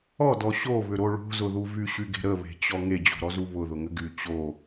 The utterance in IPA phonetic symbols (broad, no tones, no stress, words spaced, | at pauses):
ɔdɔ ɕoβʏɾo ɭo̤zʊðu vyɕyɡe̤ ɾəβe̤t͡ɕɔ ŋed͡ʑo̤ɾɔzu βʊðʊŋʏ ɡy t͡ɕo